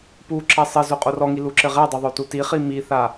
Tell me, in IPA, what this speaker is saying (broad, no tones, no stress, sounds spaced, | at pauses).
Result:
p u ǁ ɐ sˤ ɘ z o qʼ o r ɔ ŋ i l u ǁ ɘ ʁ ɛ dˤ o ðˤ o t u t i χ i m i θ a